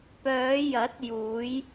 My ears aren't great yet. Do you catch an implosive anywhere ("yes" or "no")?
no